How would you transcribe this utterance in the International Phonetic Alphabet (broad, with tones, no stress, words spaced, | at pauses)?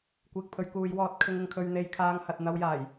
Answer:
kʷiː˨k̚pʰɵ˨˧ɥ kuː˨˧jwɔː˧t̚kʰɪ˧ŋ ɪ˧ŋkʰɵ˧ɥn̪e˧j kʰaː˧ŋhɐ˨t̚ n̪ɐ˧wjaː˨˩j